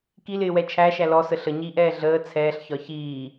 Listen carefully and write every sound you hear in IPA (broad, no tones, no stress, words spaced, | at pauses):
kilɪːwɛ t͡ʃʰæʃæ lɔsə ɬəɲiːʔɛː ɮəː t͡sʰɛːɬçɒ çiː